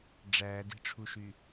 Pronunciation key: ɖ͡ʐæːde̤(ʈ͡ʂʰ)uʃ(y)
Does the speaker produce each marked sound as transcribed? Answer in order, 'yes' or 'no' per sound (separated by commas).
yes, yes